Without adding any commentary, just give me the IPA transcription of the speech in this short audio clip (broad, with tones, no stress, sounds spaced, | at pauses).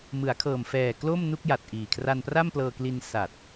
m ɯ˩˦ a̯ kʰ ɤː˨˩ m f ɛː˨˩ k l o˥˩ m n u˥˩ k̚ j a˨˩ t̚ ʔ iː˨˩ kʰ r a˧ n p r a˥˩ m p l ɤː˧ k l i˧ n s a˨˩ t̚